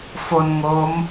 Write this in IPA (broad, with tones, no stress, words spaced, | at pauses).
fo˧n ŋo˦˥m